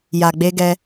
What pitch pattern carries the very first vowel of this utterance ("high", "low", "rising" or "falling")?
low